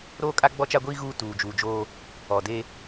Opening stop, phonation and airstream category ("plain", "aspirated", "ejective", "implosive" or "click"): ejective